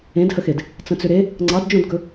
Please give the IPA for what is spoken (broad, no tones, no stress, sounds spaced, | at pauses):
ẽ d h ə x e d | t͡s ə̃ t͡s ʏ ɾ e | ŋ͡ǀ ɑ d d͡ʒ õ d ɡ ɵ